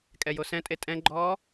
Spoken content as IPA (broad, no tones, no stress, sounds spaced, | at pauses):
kʼ ɛ j o s ɛ̃ tʼ e tʼ ɛ̃ ɡ͡ǃ ɔː